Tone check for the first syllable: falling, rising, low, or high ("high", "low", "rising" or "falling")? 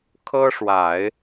high